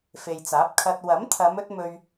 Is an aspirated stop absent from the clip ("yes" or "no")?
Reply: no